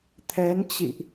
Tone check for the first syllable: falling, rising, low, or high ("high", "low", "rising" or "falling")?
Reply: rising